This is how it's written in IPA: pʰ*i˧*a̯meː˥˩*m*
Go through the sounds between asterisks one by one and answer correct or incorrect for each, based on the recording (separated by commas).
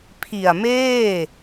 incorrect, incorrect